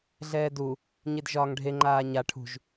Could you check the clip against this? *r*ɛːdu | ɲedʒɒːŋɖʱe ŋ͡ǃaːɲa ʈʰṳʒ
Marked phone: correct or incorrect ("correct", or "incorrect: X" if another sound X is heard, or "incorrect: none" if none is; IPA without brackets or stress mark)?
incorrect: ɮ